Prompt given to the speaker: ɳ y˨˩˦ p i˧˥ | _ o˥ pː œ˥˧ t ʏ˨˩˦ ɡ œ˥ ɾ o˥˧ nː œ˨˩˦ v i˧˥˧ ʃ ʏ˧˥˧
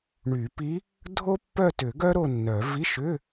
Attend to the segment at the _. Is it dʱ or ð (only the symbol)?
dʱ